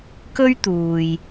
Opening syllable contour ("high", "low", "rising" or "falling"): high